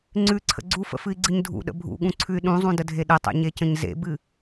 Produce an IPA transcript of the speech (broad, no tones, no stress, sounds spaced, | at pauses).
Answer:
ŋ͡ǀ ʉ ǀʰ ə̰ ɡ͡ǀ u f ə̰ f ɨ i̯ ɡ͡ǀ ɨ ɲ dʱ ṵ ɗ ə̰ bʱ ṵ ɠ ũ ǀʰ ʉ y̯ ɗ ũ zˤ ũ d ə dʱ e ɗ ə tˤ ḛ ɲ e c ə̃ ɲ z ḛ b ɨ